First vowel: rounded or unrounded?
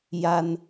unrounded